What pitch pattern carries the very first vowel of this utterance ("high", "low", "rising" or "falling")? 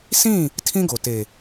falling